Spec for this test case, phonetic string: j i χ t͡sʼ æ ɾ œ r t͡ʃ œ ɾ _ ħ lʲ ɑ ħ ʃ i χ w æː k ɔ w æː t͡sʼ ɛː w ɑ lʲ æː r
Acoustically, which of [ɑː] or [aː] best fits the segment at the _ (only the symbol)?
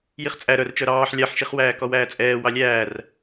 ɑː